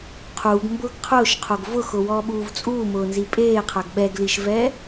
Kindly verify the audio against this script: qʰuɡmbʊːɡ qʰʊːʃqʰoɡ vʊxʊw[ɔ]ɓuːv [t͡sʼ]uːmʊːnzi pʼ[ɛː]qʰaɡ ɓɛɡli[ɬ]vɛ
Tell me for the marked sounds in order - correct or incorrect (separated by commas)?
incorrect, correct, incorrect, incorrect